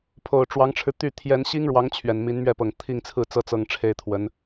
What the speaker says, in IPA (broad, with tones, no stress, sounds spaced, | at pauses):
pʰ o˨˩ ʊ̯ ʈ͡ʂ w ɑ˧˥ ŋ ʈ͡ʂʰ ɻ̩˧ t̪ y˥˩ t̪ʰ j ɛ˧˥ n ɕ i˥ ŋ ɻ w ɑ˧˥ ŋ t͡ɕʰ ɥ ɛ˨˩ n m i˧˥ n m ɥ ɛ˥˩ p ɤ˨˩ ŋ t̪ʰ i˥˧ ŋ t͡sʰ ɹ̩˥˩ t͡s ɤ˥ t͡s ɤ˥ ŋ ʈ͡ʂʰ e˥ ɪ̯ t̪ʰ w ə˧˥ n